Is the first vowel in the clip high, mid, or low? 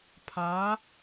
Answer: low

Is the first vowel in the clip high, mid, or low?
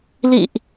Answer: high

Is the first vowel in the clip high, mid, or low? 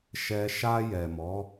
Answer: mid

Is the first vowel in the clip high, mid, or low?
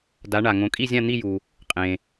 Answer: low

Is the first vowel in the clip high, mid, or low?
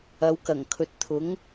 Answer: low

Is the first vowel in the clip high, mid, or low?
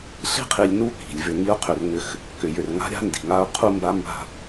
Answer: high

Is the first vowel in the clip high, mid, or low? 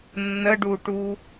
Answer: mid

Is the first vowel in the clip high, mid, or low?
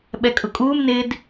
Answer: mid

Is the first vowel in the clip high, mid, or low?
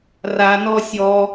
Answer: low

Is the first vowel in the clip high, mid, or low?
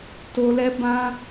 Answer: mid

